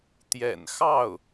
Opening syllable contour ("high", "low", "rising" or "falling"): low